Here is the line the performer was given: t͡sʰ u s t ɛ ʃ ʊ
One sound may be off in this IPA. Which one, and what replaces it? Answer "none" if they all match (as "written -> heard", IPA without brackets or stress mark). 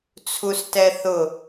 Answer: ʃ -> θ